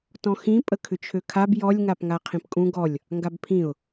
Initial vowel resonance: nasal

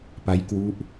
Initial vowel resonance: oral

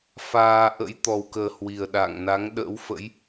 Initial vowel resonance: oral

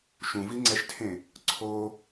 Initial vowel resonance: nasal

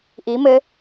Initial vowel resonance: oral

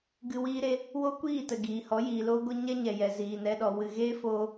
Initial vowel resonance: oral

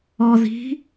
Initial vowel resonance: oral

